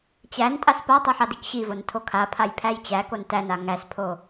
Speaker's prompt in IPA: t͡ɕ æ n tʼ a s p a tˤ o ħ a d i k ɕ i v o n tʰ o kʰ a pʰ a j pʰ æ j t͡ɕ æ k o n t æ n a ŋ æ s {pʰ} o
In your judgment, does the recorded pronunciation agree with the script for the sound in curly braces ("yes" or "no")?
yes